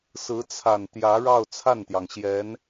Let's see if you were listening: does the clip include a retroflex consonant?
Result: yes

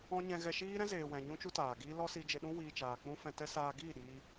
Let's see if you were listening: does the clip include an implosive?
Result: yes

